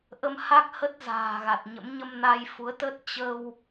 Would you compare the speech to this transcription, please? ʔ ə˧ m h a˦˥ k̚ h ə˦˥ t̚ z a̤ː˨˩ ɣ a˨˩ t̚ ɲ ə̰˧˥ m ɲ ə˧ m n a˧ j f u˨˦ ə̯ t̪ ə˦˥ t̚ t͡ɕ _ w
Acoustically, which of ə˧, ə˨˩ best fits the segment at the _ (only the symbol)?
ə˧